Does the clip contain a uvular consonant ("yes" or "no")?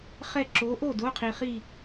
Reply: yes